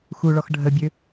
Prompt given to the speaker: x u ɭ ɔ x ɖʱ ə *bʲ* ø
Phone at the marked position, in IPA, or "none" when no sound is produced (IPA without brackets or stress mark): bʲ